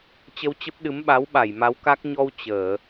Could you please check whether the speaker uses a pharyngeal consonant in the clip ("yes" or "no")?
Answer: no